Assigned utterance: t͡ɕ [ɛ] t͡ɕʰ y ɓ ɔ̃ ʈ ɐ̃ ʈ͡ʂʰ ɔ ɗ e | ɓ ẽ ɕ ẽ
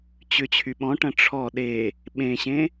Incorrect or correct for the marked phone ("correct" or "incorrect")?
incorrect